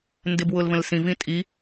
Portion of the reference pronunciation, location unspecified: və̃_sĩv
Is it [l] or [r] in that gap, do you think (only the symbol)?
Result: l